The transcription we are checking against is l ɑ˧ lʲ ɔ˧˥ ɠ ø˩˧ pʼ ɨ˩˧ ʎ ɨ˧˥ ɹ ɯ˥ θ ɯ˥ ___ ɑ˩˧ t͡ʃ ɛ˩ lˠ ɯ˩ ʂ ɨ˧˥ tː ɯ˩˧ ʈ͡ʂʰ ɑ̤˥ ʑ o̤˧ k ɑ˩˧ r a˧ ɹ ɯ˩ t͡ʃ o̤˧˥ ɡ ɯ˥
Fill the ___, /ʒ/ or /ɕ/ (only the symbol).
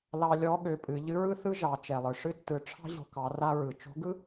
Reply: ʒ